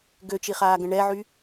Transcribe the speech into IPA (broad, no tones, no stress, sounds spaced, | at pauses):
ɡ ø t͡ʃ i χ aː ɡ ə̃ ɳ ɛ ʕ y